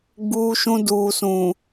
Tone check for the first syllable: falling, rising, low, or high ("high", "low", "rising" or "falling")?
high